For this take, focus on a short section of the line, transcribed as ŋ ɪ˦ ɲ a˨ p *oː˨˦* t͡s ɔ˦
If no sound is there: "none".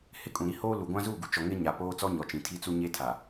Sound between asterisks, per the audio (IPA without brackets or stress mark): oː˦